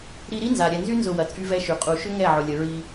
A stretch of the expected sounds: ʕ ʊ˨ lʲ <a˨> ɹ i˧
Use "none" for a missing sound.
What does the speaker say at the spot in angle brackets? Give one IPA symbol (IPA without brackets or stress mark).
ə˨